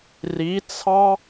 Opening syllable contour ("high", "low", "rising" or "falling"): rising